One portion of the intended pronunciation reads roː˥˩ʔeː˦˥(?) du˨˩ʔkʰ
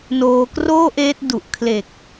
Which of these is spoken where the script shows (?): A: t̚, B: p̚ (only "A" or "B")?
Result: A